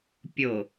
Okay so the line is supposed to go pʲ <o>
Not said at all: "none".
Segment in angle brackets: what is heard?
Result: o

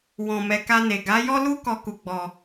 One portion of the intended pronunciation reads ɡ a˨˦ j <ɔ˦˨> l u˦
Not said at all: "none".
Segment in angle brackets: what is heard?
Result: ɔ˦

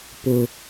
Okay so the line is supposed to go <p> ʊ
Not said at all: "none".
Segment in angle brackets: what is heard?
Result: p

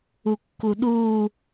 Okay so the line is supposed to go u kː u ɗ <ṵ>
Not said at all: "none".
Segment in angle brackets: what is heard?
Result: u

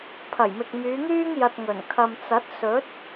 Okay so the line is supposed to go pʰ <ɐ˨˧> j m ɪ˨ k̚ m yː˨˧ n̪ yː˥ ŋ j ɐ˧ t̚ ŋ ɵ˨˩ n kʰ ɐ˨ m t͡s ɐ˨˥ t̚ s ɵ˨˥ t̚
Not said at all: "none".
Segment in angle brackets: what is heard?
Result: ɐ˨˩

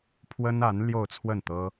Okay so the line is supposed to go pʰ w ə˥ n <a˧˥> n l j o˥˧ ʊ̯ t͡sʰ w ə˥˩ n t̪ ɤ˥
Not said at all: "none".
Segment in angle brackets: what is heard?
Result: a˧˥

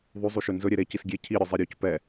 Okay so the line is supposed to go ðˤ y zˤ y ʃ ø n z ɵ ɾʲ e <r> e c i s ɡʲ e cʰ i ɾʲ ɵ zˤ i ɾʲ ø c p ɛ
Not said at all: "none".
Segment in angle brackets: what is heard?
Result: ɾ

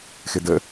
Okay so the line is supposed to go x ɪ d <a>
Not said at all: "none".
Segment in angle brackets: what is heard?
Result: ə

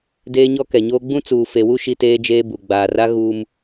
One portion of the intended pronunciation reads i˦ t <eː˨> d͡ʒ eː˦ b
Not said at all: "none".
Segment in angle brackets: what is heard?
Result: eː˦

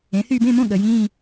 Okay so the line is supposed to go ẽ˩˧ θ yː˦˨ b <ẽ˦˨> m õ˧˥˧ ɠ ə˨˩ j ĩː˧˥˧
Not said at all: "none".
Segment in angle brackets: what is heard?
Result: ẽ˧˥˧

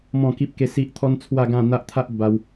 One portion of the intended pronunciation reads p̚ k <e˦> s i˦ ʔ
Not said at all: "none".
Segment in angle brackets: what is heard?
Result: e˦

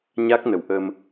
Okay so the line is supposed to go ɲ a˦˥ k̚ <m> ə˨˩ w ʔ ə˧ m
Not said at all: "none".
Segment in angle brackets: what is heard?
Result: n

